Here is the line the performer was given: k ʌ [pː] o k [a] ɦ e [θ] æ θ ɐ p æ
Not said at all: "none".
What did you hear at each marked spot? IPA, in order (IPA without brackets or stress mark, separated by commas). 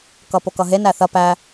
p, ʌ, n